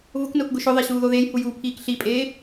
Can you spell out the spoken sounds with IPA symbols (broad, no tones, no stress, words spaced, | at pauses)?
vʊknʊːkɡʊ ʃʊðˤeɕuːðo ðejhujuːpʰiːk ɬipʼeː